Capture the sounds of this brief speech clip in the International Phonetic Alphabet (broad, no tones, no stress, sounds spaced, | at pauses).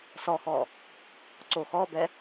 s ɔ x ɔ | ǀ o x ɔ b ɛ